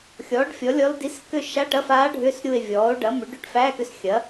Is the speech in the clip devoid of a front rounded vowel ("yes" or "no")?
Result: no